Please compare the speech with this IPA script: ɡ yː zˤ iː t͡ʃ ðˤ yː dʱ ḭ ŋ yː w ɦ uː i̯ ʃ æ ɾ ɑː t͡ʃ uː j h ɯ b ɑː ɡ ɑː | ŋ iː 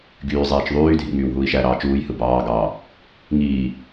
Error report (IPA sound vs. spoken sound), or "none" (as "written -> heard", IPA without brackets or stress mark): none